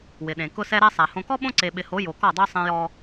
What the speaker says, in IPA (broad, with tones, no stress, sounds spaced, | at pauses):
w ɪ˨ ɗ ẽ˨ k ʊ˦ s ɛ˦ ɾ ɛ˦ sˤ a˨ h õ˨ k ɔ˦ ɓ õ˦ ǀ e˨ ɓ ɪ˨ h o˨˦ j o˨ k ɔ˦˨ dˤ o˦ sˤ ɛ̃˦ j ɔ˦